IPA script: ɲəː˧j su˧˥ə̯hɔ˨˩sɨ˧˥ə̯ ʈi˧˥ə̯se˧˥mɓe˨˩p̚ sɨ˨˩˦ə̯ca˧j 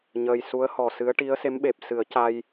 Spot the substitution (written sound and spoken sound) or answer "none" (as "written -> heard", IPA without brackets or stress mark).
none